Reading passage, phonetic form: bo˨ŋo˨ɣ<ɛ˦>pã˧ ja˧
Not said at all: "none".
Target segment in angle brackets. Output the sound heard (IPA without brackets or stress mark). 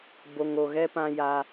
ɛ˦